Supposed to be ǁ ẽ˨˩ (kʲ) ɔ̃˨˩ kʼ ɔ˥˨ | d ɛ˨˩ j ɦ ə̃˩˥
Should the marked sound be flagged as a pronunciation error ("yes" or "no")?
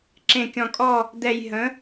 no